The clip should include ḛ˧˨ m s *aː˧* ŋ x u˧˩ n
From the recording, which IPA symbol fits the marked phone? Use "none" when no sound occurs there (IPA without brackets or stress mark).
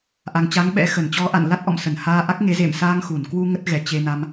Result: aː˧